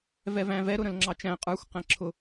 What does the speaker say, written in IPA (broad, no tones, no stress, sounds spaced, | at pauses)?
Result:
v ɛ v æ̃ v ɛ ɾ ʊ ɾ ə̃ l ŋ͡ǁ ɑ t͡ʃ æ̃ qʼ ə˞ xʷ q æ̃ ǁʰ ʊ